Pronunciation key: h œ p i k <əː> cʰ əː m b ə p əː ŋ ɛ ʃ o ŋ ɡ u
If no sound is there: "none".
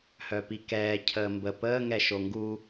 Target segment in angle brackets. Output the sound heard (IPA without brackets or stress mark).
ɛː